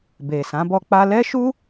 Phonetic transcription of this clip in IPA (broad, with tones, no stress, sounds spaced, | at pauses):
b e˨ s ã˨˦ b ɔ˧ k͡p a˧ l ɛ˦ ʃ u˦